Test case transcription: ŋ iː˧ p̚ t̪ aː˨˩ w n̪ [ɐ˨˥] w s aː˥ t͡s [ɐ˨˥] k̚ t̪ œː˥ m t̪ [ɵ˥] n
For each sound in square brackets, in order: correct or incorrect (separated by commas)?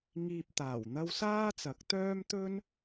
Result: incorrect, correct, correct